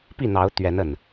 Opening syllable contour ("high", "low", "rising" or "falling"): falling